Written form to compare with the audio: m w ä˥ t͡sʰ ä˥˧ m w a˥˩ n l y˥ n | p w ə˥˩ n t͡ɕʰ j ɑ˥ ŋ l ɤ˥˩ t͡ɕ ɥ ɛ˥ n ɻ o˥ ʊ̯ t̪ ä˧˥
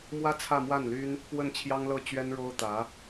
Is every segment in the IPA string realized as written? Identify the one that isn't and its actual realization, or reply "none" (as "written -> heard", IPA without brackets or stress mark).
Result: none